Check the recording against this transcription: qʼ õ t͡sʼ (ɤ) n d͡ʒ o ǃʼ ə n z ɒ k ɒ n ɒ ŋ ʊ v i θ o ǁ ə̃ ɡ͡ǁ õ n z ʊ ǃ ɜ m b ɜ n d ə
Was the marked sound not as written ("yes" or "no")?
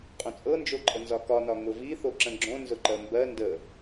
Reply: no